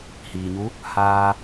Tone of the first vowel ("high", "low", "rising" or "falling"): low